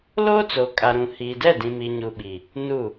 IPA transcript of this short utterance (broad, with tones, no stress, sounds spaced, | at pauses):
l oː˦ t͡s o˨ kʼ a˨ ɾ ũ˨ h iː˨ d ɛ˦˨ d ĩ˨ m i˨ ɲ u˨ ɓ i˨ | n u˦˨